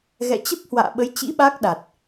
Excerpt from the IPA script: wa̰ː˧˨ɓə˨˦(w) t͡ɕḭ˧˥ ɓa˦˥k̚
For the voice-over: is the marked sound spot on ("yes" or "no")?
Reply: no